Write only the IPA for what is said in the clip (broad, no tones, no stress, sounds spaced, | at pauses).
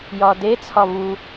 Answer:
j ɒ d e t͡sʰ ɒ v u